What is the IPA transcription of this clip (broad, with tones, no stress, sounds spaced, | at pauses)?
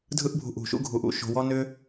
dʱ ɯ˦ ʔ bʱ ṳ˧ ʔ ṳ˨ ʃ ṵ˦ ɡʱ u˧ ʔ ṵ˧ ʃ o̤˧ w ɔ˦ n ʏ˦